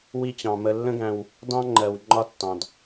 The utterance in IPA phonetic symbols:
w i˦ t͡ɕ ɑ̃˩ m ə˨ lː ə̃˦ ɡ æ̃˨ w | d ɑ̃˥ ŋ͡ǃ ɜ˩ w ŋ͡ǃ ɒ˦ tː ɑ̃˩ d

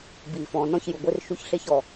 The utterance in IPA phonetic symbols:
b iː˩ f ɔ̃˩ n ɔ̃˥ ç j u˩ ɡʷ e˥ r ʃ u˥ ç ɬ e˥ ç ɔ˩

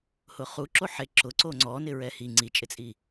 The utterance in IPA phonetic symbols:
h ʊ χ u ǁ o ħ e ǁ ʊ ǀ o ŋ͡ǀ ɔ n ɪ ɹ ɛ h i ŋ͡ǀ i t͡ʃʼ ɪ t͡sʼ i

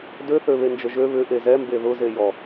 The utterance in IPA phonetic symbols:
d ø θ ø β e n d͡ʒ ə ʒ ø β ʏ ʔ e z ɛ m b e ð ʊ z e j ɔ

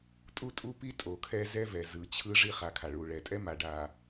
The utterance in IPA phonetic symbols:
tʼ u˦ tʼ u˦ p i˦ tʼ o˨ kʰ ɛ˦ z ɛ˦ v ɛ˨ z ɯ˨ t͡ɕʰ ɯ˦ ʐ i˦˨ χ a˨ kʰ a˨ ɭ u˨ ɭ ɛ˨ tʼ ɛ˦ m a˨ ɖ a˨

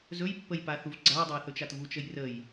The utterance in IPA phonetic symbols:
z ɵ j pː ə j p a θ u v ɡ͡ǀ a j dˤ ə j θ ɵ t͡ʃ a t v u t͡ʃ ə j r ə j

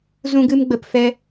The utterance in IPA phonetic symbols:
z ũ˧ ɡ ɨ˧ m ɡ͡b ə˨ p f ɛ˧

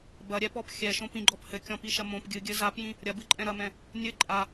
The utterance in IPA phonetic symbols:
b ɐ ɾʲ ɛ p ɔ p xʲ ɛ ʃ õ p ĩ ɡ͡ǃ ɔ p h ɘ kʲ ɔ̃ p i ʃ ɐ m õ p ɡʲ ɨ ɡʲ ɘ z a p j ĩ | ɾʲ ɐ b ɨ ǃʼ ɛ̃ ɾ ɐ m ɛ̃ | nʲ ɘ ǃʼ a

